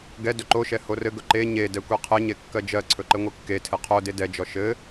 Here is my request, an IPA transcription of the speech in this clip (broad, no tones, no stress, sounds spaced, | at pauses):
ɡ ɛ d ɵ ǃ o ʃ ɛ h o r ɘ ɡ ɵ ǃ e ɲ e d ɛ kʷ e qʰ ɘ ɲ e kː ɜ d͡ʒ ɜ ǀʰ ɵ ǃ ɘ ŋʷ ɘ kː e tʰ ɘ qʰ o d e d ɛ d͡ʒ ɔ ʃ ɘ